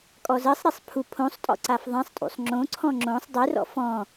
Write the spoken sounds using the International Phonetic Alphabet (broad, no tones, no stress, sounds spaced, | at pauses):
kʼ ɔ z ɜ sˤ ɾ e sˤ pʰ u pʰ õ sˤ tʼ ɔ̰ ǀ a f ðˤ ɛ̃ sˤ tʼ ṵ sˤ ŋ͡ǁ õ ǀʰ ɔ̃ ŋ͡ǁ õ sˤ dˤ e r ɔ̰ f ɔ̃